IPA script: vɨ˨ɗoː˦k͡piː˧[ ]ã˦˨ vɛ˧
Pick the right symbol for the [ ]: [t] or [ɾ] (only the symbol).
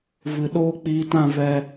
t